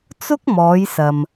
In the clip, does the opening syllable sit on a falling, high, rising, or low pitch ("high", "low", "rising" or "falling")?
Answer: high